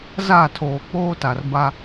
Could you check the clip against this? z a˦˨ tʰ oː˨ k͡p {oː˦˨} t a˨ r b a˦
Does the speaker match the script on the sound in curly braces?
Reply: no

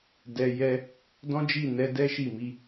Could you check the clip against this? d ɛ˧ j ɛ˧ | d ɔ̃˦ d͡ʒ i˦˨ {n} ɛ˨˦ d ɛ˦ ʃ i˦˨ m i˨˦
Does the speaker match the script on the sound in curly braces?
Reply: yes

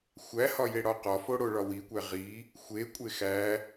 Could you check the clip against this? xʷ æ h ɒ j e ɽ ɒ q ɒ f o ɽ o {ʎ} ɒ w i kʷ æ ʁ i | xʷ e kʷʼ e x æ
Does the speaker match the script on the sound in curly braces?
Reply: no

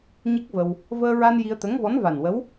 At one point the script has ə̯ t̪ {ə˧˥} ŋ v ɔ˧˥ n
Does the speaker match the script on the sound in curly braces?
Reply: yes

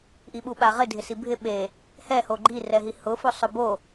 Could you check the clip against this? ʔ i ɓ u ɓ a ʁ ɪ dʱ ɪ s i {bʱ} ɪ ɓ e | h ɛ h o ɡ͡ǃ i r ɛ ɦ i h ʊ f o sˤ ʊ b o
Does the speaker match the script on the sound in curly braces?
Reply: yes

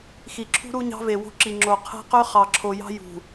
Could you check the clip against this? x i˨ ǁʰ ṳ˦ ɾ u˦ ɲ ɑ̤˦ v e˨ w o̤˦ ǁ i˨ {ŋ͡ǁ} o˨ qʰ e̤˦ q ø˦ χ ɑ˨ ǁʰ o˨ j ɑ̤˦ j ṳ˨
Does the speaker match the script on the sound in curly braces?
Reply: yes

